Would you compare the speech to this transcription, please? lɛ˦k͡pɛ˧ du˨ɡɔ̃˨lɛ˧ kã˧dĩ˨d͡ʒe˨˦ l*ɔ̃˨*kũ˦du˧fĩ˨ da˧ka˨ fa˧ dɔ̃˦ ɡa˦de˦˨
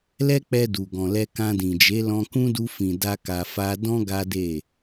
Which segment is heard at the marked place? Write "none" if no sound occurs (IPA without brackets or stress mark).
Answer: ɔ̃˧